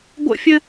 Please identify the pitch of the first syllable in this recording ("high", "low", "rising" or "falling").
high